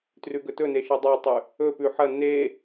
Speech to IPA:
t r ʉ ɡ ɵ t ɵ n e ʃ ɨ dˤ a tˤ ʉ | ɵ p ʉ ħ ɐ n e

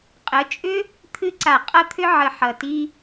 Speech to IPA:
qʼ ə˨˦ t͡ʃʼ ʏ˦ | t̪ʰ ɨ˧ ǀ a˨ qʼ ʌ˧ t̪ʰ ʏ˧ ʕ ə˨ ħ ʌ˨ t i˧

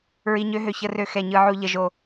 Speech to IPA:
ɹ i˩ ɲ ø˨ ɦ ø˩ ç ə˨ r ø˨ x ɛ˩ ɲ ɯ˩ ʕ u˩ ʎ ə˩ ʒ o˩

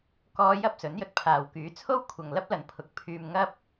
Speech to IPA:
k ɔː˥ j ɐ˥ p̚ s ɵ˨˥ n j ɵ˨ t̚ pʰ aː˨ w k yː˨˥ t͡sʰ o˥ w kʷʰ ɐ˨ ŋ l ɐ˥ p̚ l ɐ˨ n pʰ ʊ˨˥ k̚ pʰ yː˧ m ŋ ɐ˥ p̚

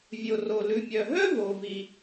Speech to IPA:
vʲ o˩ r o˩ l ʉ˩ mʲ œ˩ ɦ œ˥ v o˩ v i˩

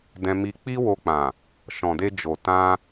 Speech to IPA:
d ɛ̃˧ m i˧ k͡p i˦ w o˧ k͡p ã˨ | ʃ ɔ̃˨ d e˧ d͡ʒ o˨ t ã˧

